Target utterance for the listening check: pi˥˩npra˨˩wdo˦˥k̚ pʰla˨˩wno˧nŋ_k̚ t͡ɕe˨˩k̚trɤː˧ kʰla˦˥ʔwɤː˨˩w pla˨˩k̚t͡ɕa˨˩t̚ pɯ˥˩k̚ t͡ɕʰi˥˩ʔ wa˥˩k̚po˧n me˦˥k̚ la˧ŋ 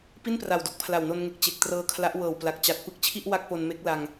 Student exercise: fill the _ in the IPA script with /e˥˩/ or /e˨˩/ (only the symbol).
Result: e˨˩